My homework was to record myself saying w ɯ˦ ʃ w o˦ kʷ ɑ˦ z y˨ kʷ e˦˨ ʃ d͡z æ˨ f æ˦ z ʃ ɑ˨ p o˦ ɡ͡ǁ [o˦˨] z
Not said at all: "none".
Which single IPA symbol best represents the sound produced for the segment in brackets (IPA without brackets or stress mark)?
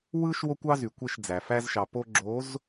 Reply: o˨˦